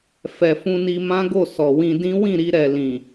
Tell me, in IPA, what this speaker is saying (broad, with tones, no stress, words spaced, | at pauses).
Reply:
fɛ˨ fũ˧ni˧mã˦ɡo˦˨ sɔ˨wĩ˧dĩ˦ wĩ˦˨ɾi˧ɾɛ˨lĩ˨